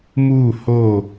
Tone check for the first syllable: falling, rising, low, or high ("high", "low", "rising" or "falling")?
falling